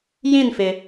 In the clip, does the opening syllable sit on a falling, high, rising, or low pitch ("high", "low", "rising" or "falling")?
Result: falling